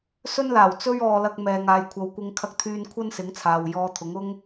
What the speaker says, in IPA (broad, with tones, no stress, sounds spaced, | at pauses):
s ɵ˥ n l aː˨˩ w t͡s ɵ˥ ɥ ɔː˨ l ɐ˧ k̚ m ɛː˨ ŋ aː˨ j kʷʰ ɐ˨˧ w kʷ ɪ˧ ŋ kʰ ɐ˧ k̚ t̪ʰ yː˧ n kʷʰ ɐ˥ n s ɪ˨˥ ŋ t͡sʰ aː˨ w j ɔː˧ t̪ʰ ʊ˨˥ ŋ ʊ˥ ŋ